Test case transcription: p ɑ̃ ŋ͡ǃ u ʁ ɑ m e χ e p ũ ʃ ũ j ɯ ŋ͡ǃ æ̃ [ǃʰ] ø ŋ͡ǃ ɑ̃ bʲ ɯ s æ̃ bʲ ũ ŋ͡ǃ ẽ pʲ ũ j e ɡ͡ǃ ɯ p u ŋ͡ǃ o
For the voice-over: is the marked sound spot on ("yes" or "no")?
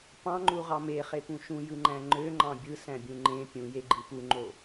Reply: no